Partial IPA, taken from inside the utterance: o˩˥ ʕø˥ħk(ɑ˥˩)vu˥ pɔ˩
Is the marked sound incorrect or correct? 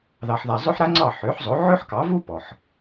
incorrect: ɑ˩˥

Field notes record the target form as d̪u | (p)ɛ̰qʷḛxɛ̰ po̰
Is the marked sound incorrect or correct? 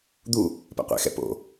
correct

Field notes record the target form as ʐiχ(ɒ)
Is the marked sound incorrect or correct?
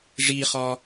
correct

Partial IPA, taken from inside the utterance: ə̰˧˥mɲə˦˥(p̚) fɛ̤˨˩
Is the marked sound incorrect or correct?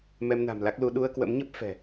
correct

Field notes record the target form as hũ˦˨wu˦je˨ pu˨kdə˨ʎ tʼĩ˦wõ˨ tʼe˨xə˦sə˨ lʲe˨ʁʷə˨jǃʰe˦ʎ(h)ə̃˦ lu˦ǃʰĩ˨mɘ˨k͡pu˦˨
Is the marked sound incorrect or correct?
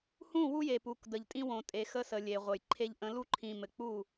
incorrect: ʔ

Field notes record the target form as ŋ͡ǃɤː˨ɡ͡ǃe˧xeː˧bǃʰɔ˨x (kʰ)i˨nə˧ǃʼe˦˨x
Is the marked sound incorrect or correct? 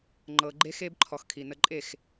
correct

